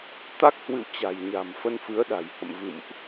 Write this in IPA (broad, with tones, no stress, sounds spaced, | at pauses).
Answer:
t̪ a˦˥ k̚ h w ɨ̰˧˨ w t͡ɕ a̤˨˩ j ɲ a̤˨˩ m f ə˧ n f ɨ˨˦ ə̯ ɗ a̤˨˩ j h ə̰˧˨ m v ɨ̰˧˨ m ʔ